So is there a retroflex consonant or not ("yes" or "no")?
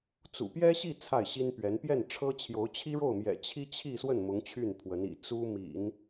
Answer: yes